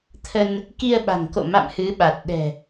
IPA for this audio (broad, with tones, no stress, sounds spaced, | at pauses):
t̪ʰ ə˧ n | k i˧ ə̯ ɓ a̤˨˩ ŋ k o̰˧˨ m a̰˧˨ m h ɨ˨˦ ɓ a˨˩ t̚ ɗ ɛ̤˨˩